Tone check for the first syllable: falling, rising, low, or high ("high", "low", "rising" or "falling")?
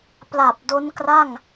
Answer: low